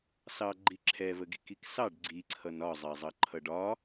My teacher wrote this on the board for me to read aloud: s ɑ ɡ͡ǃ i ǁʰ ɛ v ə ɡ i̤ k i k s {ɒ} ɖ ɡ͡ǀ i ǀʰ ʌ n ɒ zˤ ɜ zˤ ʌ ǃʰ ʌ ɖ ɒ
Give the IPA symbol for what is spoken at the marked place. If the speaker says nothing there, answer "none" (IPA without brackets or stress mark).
ɑ